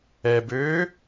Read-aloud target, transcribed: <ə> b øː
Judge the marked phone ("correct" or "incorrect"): incorrect